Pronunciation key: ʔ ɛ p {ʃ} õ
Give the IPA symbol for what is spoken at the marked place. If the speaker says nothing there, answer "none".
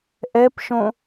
ʃ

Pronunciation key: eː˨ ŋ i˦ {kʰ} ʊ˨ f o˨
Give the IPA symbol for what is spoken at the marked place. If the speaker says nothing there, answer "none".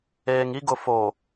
ɡ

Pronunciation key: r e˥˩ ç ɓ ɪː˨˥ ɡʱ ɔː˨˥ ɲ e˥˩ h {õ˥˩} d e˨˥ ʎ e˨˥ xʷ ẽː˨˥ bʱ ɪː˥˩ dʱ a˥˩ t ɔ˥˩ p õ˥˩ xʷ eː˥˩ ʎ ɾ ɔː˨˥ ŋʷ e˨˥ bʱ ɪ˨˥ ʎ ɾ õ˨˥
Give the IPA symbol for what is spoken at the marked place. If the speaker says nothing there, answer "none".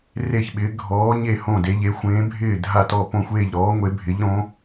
õ˥˩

